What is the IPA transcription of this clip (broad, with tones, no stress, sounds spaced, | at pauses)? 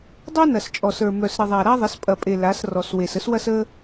dˤ œ˦ n ɐ˨ s t͡ʃʼ ɔ˨ s ə˞˨ m œ˨ s ɾ ɪ˨ ðˤ a˨ ɾ a˦ ðˤ ɪ˨˦ s pʼ ɐ˨ pʼ e˨ l a˨˦ s r ɔ˨ s w e˨ s ə˦ s w ɐ˦ s ə˦